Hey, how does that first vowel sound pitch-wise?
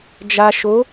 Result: low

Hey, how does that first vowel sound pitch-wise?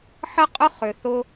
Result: high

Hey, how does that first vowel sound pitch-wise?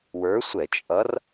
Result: rising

